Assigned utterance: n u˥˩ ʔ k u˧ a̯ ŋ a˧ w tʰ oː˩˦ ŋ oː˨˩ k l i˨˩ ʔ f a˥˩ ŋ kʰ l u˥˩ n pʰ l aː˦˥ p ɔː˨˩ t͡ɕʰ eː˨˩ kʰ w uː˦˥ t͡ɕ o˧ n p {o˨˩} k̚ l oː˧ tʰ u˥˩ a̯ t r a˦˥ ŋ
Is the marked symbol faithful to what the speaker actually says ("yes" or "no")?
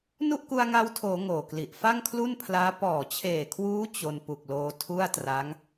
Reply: no